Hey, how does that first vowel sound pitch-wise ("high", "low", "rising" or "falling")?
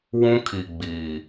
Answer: high